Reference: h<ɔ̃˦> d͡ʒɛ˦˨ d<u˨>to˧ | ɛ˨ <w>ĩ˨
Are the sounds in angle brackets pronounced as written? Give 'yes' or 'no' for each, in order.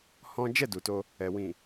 yes, yes, yes

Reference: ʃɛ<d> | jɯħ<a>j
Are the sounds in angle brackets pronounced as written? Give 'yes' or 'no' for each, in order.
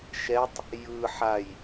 no, yes

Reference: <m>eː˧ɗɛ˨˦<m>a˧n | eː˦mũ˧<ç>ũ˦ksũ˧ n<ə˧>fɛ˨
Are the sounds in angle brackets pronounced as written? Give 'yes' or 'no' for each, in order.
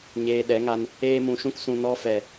no, no, no, no

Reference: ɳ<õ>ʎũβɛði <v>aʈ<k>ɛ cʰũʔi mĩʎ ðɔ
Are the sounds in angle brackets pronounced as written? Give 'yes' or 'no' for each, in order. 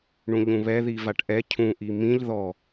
no, yes, no

